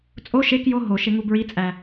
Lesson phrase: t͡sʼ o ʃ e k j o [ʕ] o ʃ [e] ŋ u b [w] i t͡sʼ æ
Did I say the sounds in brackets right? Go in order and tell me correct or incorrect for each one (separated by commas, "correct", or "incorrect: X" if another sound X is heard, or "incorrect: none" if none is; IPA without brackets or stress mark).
incorrect: ɦ, correct, incorrect: ɹ